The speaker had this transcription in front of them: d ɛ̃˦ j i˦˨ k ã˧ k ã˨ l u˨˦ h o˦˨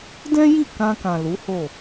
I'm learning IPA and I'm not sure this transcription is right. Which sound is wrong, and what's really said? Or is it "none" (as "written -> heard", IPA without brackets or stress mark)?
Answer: none